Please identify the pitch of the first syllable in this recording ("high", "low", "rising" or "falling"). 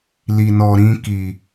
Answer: low